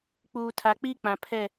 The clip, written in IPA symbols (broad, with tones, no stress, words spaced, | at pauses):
k͡puː˨tʰa˨k͡pi˦k͡pã˨ pʰɛ˦˨